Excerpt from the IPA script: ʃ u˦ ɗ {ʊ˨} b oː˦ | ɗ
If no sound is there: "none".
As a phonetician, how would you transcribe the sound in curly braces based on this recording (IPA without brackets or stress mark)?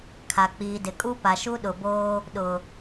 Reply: ʊ˨